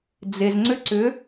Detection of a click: present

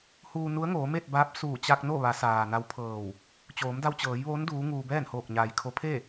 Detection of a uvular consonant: absent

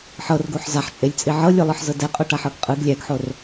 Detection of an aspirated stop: absent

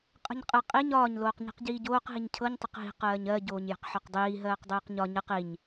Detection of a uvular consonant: present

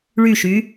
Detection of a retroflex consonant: present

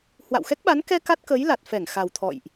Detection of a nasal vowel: absent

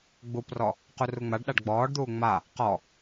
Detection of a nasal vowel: absent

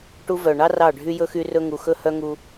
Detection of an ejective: absent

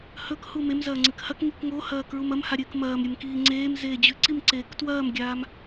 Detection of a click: present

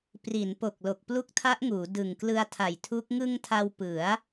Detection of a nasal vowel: absent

